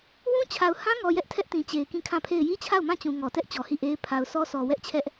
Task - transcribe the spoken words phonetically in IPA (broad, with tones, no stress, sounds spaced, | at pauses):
w ũ˦ t͡ɕʰ a˨ ʊ̯ h ã˦ ŋ ɔ˨ j ɛ˦ ʔ tʰ ɛ˦ ʔ t ĩ˨ t͡ɕ e˨ ɪ̯ k ĩ˦˨ kʰ ã˦˨ pʰ e˦˨ ɪ̯ j i˦ t͡ɕʰ a˦˨ ʊ̯ m ã˦˨ t͡ɕ ũ˨ ŋ ɔ˨ t ɛ˦ ʔ t͡ɕ ɔ˨ h i˦˨ ʔ e˦ ɪ̯ pʰ a˨ ʊ̯ s ɔ˦ s ɔ˨ w ɛ˦ ʔ t͡ɕʰ ɛ˦ ʔ